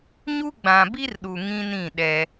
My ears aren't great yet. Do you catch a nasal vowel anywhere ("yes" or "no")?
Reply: yes